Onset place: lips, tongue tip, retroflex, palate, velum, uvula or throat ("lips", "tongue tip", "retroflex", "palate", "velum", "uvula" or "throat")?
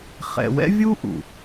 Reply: uvula